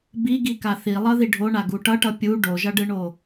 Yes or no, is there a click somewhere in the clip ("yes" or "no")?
no